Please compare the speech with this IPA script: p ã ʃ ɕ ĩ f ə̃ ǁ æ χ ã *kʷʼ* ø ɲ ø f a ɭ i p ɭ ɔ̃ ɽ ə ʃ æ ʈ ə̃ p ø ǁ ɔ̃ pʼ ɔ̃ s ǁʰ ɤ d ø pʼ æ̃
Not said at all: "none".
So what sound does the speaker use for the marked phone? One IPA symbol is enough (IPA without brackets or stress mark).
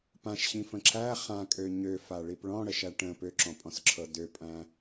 kʼ